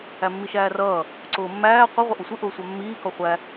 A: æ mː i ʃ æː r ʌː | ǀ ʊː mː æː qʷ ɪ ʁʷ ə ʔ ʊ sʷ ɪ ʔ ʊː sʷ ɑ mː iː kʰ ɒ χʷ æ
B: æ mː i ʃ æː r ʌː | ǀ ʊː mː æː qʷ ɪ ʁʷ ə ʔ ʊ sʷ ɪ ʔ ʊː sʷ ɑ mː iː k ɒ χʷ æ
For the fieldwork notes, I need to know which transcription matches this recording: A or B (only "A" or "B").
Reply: B